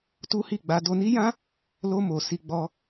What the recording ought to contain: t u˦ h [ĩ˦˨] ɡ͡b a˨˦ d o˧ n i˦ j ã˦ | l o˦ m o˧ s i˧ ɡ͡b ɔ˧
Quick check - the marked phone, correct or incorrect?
incorrect